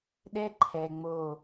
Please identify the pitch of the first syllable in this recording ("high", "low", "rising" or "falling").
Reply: high